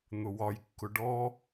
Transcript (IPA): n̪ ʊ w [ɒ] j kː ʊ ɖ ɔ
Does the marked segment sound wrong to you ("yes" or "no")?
no